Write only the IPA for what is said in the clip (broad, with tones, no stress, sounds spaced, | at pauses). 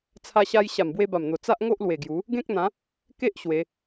t͡sʰ a˧ ɕ a˧ j ɕ a˨˩ m b w e˧ b a˨˩ m n̪ o˨˩ t͡s a˦ ʔ ŋ o˦ ʔ l w e˨˩ ɡ j u˨˦ | ɡ ẽ˦ k̚ n̪ ã˨˦ | k e˦ ʔ ɕ w e˨˦